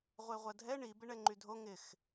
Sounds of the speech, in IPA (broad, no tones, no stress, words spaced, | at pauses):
ʁʷeʁʷɐdʱɛ ɳi bɪɳɛŋ͡ǃydʱo ŋɪx